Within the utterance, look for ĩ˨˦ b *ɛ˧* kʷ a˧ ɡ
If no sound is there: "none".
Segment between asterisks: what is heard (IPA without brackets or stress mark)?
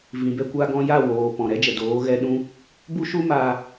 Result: ɛ˧